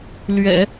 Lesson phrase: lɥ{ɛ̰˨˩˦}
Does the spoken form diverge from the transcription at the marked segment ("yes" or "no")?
no